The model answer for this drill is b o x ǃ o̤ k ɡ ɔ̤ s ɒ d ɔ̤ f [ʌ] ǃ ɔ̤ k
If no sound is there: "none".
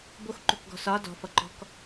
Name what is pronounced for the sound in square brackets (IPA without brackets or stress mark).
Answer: ʌ